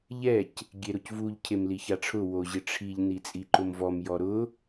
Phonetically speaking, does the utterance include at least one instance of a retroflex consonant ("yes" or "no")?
yes